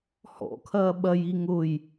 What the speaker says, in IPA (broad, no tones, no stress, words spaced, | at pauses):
hɔ̰kʰɐː ɓɐji ŋʊj